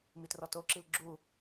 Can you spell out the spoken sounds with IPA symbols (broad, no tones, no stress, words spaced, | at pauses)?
mitrɔtoǁil ɡ͡ǁu